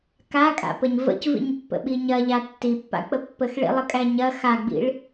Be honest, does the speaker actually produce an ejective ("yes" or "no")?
yes